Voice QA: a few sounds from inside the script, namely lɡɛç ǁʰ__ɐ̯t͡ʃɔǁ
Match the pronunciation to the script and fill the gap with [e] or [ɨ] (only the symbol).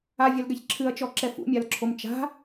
ɨ